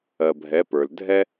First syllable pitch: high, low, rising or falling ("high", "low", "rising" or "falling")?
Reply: low